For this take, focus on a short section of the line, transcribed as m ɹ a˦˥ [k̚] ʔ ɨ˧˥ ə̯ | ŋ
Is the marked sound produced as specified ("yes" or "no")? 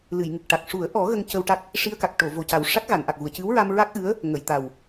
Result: yes